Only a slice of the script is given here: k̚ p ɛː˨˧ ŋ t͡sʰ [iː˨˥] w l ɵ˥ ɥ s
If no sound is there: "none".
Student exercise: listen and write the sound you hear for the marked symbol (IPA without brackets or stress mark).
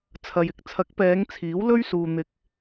iː˨˥